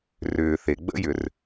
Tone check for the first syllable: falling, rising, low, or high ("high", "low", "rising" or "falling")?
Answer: low